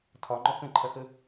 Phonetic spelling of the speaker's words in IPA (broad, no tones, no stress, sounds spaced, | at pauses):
tʰ ɒ ŋ͡ǃ ɔ k ə̃ ǃʰ ɐ x ə